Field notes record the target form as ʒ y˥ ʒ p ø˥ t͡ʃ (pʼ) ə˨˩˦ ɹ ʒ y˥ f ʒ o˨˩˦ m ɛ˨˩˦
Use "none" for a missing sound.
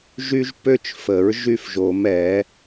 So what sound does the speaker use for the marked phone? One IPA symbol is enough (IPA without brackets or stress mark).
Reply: f